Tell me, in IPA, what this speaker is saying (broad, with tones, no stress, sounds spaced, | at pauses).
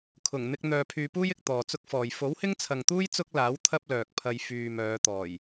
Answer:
kʰ ʊ˨˩ ŋ n̪ ɪ˧ k̚ n̪ œː˨ pʰ yː˨ p uː˥ j ɪ˨ k̚ t̪ ɔː˨ t͡s ʊ˥ k̚ f ɔː˨ j f o˨˥ w h ɪ˥ ŋ t͡sʰ ɐ˨ ŋ t̪ uː˥ j t͡s ʊ˥ k̚ l aː˨˥ w t̪ʰ ɐ˥ p̚ l œː˨ k̚ pʰ ɐ˧ j f yː˨ m œː˨˧ t̪ ɔː˨˩ j